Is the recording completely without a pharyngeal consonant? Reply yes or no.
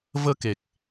yes